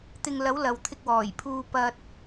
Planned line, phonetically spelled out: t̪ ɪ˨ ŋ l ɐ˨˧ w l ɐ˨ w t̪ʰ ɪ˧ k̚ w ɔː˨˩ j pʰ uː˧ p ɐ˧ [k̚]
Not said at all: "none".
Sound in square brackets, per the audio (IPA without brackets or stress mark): t̚